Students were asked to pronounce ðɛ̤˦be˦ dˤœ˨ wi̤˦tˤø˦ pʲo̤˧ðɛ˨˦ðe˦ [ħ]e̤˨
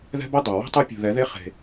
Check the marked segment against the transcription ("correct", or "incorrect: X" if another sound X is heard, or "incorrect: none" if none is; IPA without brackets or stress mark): incorrect: χ